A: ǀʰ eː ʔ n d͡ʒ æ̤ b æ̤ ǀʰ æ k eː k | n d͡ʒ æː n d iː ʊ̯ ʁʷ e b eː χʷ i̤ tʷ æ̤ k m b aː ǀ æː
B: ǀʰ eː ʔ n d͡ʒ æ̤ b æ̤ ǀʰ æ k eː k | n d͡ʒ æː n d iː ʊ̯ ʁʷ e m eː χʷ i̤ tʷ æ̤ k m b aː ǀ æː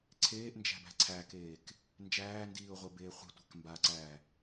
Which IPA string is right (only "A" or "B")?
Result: A